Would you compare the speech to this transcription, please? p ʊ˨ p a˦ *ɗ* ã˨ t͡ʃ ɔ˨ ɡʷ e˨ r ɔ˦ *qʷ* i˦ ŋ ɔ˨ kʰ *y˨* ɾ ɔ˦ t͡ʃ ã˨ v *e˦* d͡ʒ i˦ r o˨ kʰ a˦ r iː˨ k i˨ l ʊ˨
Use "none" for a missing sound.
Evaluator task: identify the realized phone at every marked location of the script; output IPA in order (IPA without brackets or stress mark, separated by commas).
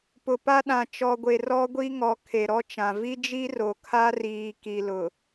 ɗ, ɡʷ, e˨, i˦